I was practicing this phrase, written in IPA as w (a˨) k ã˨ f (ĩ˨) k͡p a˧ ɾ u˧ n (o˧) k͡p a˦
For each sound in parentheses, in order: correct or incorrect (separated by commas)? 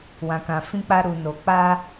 incorrect, incorrect, correct